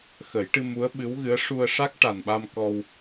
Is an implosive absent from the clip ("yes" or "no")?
no